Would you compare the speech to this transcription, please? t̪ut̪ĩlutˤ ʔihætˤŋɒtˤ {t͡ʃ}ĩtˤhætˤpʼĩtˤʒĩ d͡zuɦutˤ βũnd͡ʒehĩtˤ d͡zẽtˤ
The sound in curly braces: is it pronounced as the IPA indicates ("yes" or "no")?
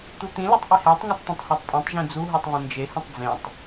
no